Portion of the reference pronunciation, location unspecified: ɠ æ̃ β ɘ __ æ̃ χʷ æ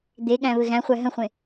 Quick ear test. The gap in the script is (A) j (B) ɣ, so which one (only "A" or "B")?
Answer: B